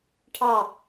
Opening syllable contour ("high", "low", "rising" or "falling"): falling